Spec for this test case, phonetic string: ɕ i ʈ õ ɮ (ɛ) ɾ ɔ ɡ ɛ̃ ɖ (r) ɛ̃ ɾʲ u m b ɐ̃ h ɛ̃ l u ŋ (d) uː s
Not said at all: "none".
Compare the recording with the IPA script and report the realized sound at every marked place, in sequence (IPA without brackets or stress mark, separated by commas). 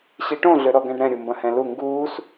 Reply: ø, ɾ, ɡ